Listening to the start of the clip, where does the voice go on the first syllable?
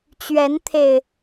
rising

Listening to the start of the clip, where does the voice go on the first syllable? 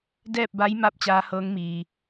falling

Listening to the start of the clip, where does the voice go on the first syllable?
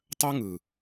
high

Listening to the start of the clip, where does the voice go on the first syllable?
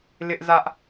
high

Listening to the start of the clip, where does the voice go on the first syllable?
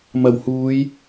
low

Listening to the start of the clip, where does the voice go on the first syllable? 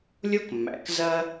high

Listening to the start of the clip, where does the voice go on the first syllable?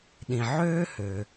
low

